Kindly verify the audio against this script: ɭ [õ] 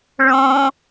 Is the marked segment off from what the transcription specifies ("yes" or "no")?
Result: no